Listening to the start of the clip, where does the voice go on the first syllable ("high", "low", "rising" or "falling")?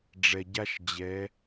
low